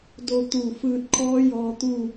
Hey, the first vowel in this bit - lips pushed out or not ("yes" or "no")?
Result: yes